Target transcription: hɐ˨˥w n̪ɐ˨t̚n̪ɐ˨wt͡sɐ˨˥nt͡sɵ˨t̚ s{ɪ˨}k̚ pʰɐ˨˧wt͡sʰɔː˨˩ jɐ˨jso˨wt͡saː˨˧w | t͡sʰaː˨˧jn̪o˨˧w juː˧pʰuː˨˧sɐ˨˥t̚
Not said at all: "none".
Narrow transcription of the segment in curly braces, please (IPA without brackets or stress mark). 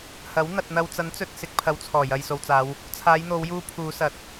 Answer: ɪ˨